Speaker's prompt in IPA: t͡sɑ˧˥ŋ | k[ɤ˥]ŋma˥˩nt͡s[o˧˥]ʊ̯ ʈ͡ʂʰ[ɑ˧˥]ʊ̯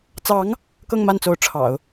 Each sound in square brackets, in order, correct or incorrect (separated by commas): incorrect, correct, incorrect